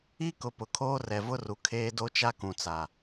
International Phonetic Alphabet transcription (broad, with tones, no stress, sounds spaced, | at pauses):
i˦ k ʊ˨ p ʊ˨ kʰ oː˦ r ɛ˨ v ʊ˦ r u˨ kʰ eː˦ d o˦ t͡ʃ a˦ k ũ˨ t͡s a˨